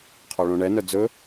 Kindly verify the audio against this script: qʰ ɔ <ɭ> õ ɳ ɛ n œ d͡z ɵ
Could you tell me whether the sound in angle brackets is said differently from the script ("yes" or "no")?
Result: no